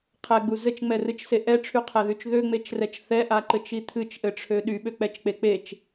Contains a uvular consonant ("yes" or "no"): yes